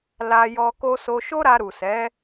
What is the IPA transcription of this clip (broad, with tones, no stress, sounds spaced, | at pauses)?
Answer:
l a˧ j ɔ˧ k o˧ s o˧ ʃ o˦ ɾ a˧ ɾ u˨ s ɛ˨˦